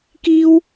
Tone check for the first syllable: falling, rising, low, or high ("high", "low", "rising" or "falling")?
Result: high